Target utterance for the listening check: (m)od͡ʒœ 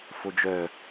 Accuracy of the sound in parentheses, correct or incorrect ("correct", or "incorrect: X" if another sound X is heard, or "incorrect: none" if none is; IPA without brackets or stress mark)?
incorrect: f